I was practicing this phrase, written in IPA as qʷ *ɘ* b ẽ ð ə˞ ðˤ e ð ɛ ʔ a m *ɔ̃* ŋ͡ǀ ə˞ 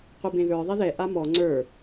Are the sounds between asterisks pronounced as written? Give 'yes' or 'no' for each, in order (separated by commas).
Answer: yes, no